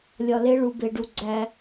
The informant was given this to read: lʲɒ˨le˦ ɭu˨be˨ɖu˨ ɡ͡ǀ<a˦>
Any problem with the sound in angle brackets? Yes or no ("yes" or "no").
yes